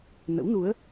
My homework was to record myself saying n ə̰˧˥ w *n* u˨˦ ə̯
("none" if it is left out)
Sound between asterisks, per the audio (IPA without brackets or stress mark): n